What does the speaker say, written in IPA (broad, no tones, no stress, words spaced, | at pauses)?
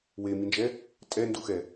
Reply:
wemind͡ʒɛ | tʼɛnduxɛ